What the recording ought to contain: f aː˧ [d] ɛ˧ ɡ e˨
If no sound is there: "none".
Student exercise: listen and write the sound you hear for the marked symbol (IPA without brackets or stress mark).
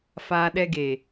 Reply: ɗ